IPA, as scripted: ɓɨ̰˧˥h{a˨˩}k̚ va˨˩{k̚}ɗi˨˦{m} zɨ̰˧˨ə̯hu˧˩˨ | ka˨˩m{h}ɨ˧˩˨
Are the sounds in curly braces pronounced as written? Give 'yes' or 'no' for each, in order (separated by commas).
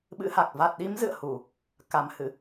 yes, no, yes, yes